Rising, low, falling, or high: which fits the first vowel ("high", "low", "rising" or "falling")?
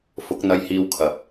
rising